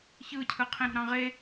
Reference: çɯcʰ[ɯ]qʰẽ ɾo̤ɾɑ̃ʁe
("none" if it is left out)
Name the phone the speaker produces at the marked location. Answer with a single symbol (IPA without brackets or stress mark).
ɯ